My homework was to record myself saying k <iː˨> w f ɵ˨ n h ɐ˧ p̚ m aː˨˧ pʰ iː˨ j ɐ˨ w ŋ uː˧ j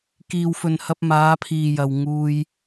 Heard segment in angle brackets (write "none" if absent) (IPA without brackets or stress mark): iː˨